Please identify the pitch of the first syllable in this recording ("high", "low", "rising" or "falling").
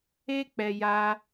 high